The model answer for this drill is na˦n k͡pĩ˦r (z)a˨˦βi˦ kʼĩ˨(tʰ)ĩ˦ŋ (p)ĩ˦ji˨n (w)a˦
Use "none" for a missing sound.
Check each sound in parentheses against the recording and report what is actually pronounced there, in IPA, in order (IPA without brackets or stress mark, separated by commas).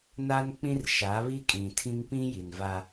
ʃ, tʰ, p, v